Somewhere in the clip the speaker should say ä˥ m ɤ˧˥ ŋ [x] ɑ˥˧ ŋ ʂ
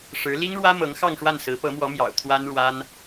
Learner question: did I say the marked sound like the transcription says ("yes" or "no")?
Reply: yes